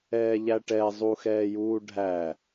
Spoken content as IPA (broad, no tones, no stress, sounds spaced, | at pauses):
ɛː ʎ æ ʈ ɛ zˤ u x ɛː j uː ɖʱ æ